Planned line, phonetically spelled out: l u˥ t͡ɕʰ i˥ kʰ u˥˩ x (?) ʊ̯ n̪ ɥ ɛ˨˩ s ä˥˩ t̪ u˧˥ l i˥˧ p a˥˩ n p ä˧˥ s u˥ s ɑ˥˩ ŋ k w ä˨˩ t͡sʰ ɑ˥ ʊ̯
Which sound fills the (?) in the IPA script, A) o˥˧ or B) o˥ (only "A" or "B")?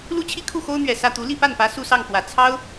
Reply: B